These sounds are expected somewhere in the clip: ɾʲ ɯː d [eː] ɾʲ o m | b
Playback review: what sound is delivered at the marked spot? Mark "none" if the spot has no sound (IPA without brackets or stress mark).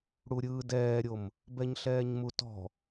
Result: ɛː